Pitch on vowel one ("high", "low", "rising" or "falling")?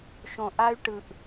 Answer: low